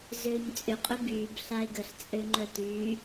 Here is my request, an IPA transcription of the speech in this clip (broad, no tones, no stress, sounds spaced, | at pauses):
z øː ɲ t͡sʼ ʏ qʼ ʏ b yː b ɬ a e̯ ɡ ə ɬ t͡sʼ ø ŋ͡ǃ œ t yː